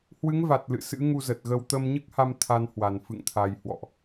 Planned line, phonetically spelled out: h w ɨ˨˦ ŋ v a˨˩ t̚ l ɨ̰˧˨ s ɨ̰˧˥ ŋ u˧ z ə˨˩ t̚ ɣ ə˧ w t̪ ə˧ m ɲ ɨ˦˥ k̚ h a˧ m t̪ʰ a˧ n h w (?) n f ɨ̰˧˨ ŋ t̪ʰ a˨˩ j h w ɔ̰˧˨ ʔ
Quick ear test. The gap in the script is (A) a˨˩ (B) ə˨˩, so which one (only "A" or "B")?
A